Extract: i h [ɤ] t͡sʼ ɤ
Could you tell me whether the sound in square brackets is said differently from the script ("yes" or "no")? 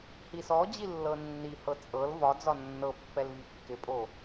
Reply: no